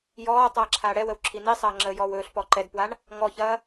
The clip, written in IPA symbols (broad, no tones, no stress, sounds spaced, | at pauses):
j ɔː tˤ aː ǁʰ aː ɽ ɛ w ə w ǁʰ i n i sˤ ɐː ŋ͡ǁ əː j ɔː w ɵː ɬ p ɔ ǃ ɛ d p w a ɳ | ŋ ɔ ç ɐː